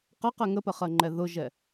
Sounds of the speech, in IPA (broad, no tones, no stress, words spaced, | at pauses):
qɜqɛ ŋəpəχɜŋ͡ǃɛ ðʊʒɛ